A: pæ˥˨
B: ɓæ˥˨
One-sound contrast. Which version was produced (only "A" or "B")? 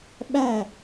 B